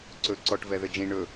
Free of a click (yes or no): no